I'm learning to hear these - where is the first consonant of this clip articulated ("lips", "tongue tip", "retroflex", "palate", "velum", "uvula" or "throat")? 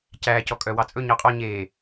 palate